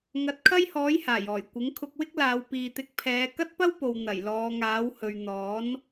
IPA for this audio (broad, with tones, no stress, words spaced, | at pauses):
ŋɐ˨˥t̚kʰɐ˥jhɔː˨˥j haː˨˩jɔː˨˩j kʷɪ˨˥ŋ kʰʊ˧k̚wɪ˥k̚laː˨˧w piː˨t̪ɪ˨˥k̚pʰɛː˨˧ kɐ˥t̚pɐ˥wpo˨w n̪ɐ˨˩jlɔː˨˧ ŋaː˨˥whɵ˨ɥ n̪ɔː˨˥n